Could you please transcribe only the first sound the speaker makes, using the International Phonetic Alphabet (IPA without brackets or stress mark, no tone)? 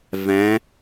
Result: v